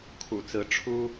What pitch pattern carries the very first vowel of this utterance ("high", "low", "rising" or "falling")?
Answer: low